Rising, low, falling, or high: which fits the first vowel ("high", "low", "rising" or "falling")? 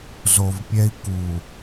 low